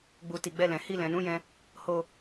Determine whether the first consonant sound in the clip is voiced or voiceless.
voiced